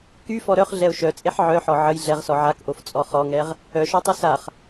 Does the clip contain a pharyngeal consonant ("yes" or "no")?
yes